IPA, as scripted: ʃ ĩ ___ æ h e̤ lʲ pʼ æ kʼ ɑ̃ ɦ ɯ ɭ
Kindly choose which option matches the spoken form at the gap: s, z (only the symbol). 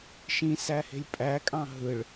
s